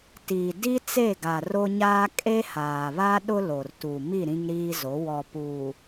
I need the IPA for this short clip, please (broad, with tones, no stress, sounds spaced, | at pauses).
t iː˨ d i˦ t͡s e˦˨ ɡ a˨ r o˦ ɲ aː˦ kʼ e˦ h aː˨ β a˦ ɗ ʊ˦ l o˨ r t u˨ m i˦˨ ɾ ĩ˦ ŋ ɾ iː˦ z o˨˦ w ɔ˨ p uː˨